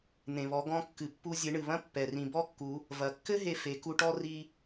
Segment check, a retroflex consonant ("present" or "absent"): present